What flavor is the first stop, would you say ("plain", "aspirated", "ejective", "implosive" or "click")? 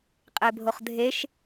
ejective